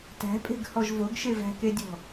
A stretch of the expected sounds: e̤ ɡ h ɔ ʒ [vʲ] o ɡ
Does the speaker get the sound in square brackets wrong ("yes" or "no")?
yes